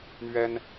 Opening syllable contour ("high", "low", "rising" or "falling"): high